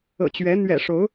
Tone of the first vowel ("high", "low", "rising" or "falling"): low